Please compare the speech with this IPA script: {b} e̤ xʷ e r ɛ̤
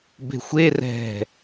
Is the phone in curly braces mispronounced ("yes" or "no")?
no